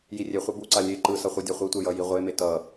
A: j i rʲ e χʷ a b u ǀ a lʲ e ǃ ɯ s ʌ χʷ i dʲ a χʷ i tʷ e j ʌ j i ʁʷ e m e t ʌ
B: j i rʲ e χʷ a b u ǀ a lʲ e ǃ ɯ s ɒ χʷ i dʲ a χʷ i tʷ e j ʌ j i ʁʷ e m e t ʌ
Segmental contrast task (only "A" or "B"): A